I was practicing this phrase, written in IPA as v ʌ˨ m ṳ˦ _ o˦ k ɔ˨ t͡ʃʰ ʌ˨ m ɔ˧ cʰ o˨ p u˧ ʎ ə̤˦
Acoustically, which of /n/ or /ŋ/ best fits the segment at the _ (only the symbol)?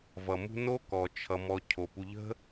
n